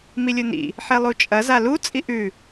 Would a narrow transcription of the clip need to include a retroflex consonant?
no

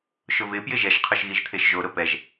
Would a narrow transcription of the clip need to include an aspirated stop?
yes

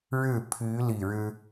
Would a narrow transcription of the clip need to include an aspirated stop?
yes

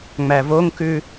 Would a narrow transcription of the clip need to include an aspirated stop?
no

